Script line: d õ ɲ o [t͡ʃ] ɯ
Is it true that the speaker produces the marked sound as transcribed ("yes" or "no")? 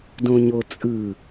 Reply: no